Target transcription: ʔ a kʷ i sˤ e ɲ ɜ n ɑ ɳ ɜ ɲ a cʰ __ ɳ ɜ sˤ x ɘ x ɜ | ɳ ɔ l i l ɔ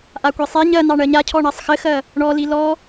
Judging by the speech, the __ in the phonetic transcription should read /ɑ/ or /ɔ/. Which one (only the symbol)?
ɔ